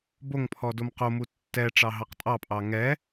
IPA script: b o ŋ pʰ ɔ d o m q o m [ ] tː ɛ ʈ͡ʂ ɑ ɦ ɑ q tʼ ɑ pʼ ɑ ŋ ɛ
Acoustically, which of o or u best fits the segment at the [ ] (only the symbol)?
u